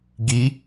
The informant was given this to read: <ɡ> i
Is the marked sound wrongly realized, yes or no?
no